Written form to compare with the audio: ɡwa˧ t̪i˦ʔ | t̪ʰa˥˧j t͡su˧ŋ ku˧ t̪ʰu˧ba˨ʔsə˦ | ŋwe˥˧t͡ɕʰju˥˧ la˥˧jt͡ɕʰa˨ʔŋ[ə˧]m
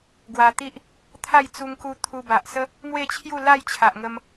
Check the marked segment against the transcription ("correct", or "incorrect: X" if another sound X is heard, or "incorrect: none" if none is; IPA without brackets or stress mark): correct